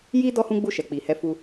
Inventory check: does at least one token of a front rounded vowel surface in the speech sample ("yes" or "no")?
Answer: no